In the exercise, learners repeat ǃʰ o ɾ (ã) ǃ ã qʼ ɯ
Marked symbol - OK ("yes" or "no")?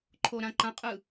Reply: yes